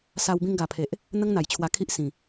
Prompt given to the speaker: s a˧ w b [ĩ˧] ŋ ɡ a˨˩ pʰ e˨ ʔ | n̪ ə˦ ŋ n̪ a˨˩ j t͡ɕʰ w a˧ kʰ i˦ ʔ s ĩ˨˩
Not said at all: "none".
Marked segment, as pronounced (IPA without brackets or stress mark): ĩ˧